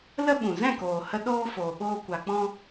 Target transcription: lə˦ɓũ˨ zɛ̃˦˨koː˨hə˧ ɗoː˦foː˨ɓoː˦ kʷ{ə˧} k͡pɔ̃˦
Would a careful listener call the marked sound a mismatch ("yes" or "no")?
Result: yes